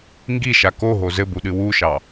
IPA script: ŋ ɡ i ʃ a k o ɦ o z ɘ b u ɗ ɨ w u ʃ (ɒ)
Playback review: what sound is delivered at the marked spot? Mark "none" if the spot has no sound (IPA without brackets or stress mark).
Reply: ɑ